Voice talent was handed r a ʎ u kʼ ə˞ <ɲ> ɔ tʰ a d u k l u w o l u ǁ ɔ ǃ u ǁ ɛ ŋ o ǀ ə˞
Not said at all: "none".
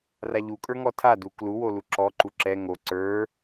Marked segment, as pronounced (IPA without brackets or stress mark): ŋ